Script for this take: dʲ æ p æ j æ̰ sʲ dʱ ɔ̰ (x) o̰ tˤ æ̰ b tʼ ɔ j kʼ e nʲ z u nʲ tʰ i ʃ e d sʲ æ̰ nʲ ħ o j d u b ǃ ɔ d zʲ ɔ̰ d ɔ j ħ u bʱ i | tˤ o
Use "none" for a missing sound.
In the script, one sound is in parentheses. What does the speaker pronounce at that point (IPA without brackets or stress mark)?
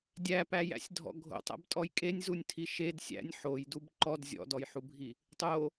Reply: ɡʱ